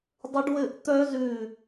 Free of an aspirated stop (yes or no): yes